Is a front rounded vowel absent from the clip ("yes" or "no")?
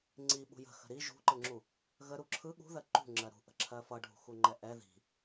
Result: yes